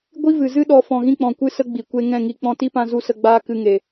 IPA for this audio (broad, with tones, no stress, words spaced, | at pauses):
ɡʷi˦vɨ˨zɨ˦ ɗɔ˧ fɔ̃˨ɣĩ˧k͡pɔ̃˨kʷɨ˧ sə˦ɡ͡bi˨ kʷe˦ ŋɛ̃˦˨ŋi˧ k͡pɔ̃˧ti˦pã˧ zu˦ sə˧ɡ͡baː˦ kɨ˧ŋe˨